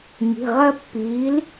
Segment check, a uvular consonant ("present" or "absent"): present